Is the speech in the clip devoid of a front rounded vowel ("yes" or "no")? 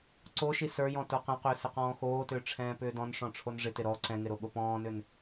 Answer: no